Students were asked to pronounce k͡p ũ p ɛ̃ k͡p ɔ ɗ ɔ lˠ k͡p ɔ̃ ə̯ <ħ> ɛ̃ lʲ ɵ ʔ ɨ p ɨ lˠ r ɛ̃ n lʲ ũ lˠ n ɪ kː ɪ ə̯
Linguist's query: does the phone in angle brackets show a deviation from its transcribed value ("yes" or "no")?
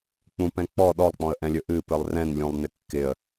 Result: yes